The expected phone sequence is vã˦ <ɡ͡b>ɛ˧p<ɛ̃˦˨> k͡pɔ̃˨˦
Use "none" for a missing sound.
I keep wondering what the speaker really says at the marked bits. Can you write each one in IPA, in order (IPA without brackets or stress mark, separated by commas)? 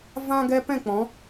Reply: ɡ, ɛ̃˦˨